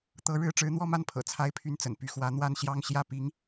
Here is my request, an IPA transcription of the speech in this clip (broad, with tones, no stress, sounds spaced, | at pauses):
t̪ ɤ˧˥ ɻ ɻ̩˥ ʈ͡ʂ ɻ̩˧˥ n̪ w ɔ˥˧ m a˥˩ n pʰ ɤ̰˨˩ t͡sʰ a˥ ɪ̯ pʰ y˥˩ n t͡s ə̰˨˩ n p y˧˥ x w ä˧˥ n̪ w a˥˧ n ɕ j ɑ˥˧ ŋ ɕ j ä˥˩ p i˧˥ ŋ